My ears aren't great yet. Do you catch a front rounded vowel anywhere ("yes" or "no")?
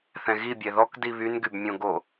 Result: yes